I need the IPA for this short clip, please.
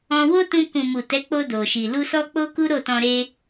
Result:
ɔ̃˧ w o˦ t ũ˧ k ũ˨ m u˨ t ɛ˨˦ k͡p o˧ d o˨ ʃ i˨ l u˧ s ɔ˦ k͡p o˦ k u˦ ɾ o˦˨ t ɔ̃˧ ɾ e˦

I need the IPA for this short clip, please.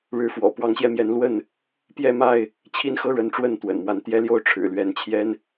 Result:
ɻ ɻ̩˨˦ f w ɔ̰˨˩ p w ɑ˨˦ ŋ ɕ j ɛ˧ m j ɛ˨˦ n l w ə˥˨ n | p j ɛ˥˨ m a˥˨ ɪ̯ | t͡ɕʰ i˦ n x ɤ˦ ɻ ə˨˦ n ʈ͡ʂ w ə˥˨ n t̪ w ə̰˨˩ n m w a˦ n t̪ j ɛ˦ l j o˥˨ ʊ̯ ʈ͡ʂʰ ɻ̩˨˩ l ɥ ɛ˨˦ n t͡ɕʰ j ɛ˦ n

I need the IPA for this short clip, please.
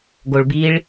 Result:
ɡ o ɭ b i ɭ

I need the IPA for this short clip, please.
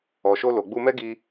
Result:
ɔ˨ ʃ o˧ l o˨ ɡ͡b u˧ m ɛ˦ ɡ i˧

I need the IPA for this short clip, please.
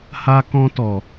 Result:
h a˧ k ɔ̃˦ t ɔ˨

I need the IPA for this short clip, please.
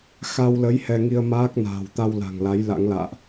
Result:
x a˧ w l ə˨˦ j h ɛ˧ ŋ i˧ ə̯ m aː˦˥ k̚ n a̤ː˨˩ w t̪ a˧ w l a̤˨˩ ŋ l a˨˦ j l a̰˧˥ ŋ l a̰ː˧˨ ʔ

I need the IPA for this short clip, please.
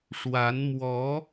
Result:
ʂ w a˧˥ n m w ɔ˧˥

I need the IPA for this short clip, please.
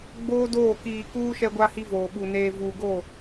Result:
ɡ͡b oː˦ d oː˦˨ k iː˨ k uː˦ ʃ ɛ˦ ɡʷ a˦ h i˦ v oː˨ ɓ u˨ n eː˨ v uː˨ ɡ o˦˨

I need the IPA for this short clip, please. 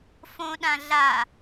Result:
f õ ɗ ã ɮ a

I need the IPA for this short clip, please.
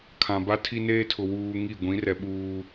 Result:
kʰ ã˨ b a˦ tʰ i˦ n eː˦ tʰ ʊ˨ w uː˦ ŋ i˦˨ ɡʷ ĩ˨˦ r ɛ˨ ɓ uː˦

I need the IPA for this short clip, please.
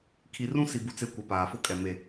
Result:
kʰ i˨ r ũ˦ s i˨ b u˨ t͡s e˨ kʷ ɛ˨ p aː˨ f ʊ˦ kʼ ɛ˨ m e˨

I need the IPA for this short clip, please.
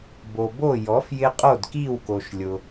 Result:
b o˩ b o˧˩ j ɔ˩˥ f j ɪ˧ qʼ o˧˩ d k i˧˩ w k o˩ ʃ lʲ ʊ˩

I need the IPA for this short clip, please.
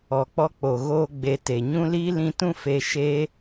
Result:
ɔ˨ k͡p ɔ˦ k͡p o˨ ɣ oː˧ ɡ͡b e˨ t e˨ ɲ ũ˦ l iː˦ l ĩ˧ t ũ˦ f e˧ ʃ eː˦

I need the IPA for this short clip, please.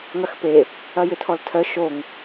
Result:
ŋ ɐ x p e | ɐ j ʏ tʰ ɔ l tʰ œ ʃ o ŋ

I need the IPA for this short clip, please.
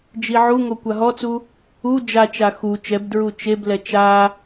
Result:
d͡ʒ i ʕ u ŋ o kʷ a ɦ ɔ t͡s u | u d͡ʒ a t͡ʃ a x u t͡ʃ ɛ b d ɹ u t͡ʃ e b l ɛ t͡ʃ a

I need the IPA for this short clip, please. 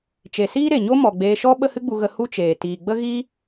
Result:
t͡ʃ e˨ s iː˦ ɾ e˨ ɲ o˦ m ɔ˨ ɡ͡b eː˧ ʃ ɔ˦ ɓ ə˦ h ɨ˦ ɡ͡b u˧ ɣ ə˧ h u˦ t͡ʃ eː˨ t iː˨ ɡ͡b ə˦ ɣ i˦

